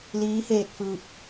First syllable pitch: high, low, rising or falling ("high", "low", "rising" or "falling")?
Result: rising